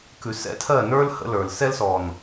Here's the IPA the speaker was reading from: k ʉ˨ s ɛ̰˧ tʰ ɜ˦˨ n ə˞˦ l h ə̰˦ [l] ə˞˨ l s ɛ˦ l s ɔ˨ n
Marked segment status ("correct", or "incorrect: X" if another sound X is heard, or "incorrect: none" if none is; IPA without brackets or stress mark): correct